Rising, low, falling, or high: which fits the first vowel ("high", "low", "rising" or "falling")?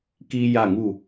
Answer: high